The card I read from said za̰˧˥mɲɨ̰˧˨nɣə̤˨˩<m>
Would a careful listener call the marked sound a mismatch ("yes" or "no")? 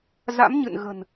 yes